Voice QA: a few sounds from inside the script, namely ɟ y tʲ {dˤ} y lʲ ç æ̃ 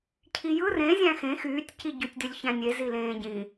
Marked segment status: incorrect: d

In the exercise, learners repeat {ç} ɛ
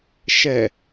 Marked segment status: incorrect: ʃ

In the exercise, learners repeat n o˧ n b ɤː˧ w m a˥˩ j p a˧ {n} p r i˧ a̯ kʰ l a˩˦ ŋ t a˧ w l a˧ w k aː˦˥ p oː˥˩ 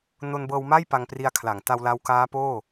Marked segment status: incorrect: ŋ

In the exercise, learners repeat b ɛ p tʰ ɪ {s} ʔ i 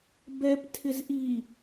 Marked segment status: incorrect: z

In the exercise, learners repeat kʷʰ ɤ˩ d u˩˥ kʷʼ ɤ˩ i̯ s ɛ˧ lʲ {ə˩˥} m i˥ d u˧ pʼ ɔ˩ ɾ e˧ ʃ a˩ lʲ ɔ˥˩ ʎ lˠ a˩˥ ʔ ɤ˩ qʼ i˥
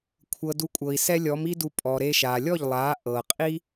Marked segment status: incorrect: ɔ˩˥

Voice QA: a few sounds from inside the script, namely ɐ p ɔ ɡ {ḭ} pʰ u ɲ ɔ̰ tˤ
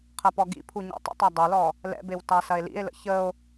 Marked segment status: correct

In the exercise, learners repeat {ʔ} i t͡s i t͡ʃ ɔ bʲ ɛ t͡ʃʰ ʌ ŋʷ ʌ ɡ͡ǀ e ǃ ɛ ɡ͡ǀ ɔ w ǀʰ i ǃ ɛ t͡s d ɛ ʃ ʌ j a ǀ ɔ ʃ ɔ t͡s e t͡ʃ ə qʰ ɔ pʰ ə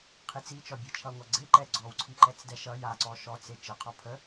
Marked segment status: incorrect: qʰ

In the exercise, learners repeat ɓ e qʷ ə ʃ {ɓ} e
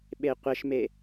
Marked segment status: incorrect: m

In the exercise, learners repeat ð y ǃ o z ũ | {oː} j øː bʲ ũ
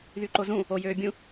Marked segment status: incorrect: o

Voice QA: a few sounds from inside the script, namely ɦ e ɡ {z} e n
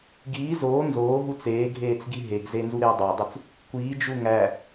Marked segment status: correct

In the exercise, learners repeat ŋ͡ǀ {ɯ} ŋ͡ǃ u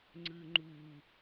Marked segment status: correct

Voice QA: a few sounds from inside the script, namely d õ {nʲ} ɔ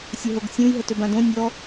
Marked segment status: correct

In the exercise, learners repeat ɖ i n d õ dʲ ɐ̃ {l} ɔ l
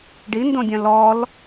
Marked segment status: correct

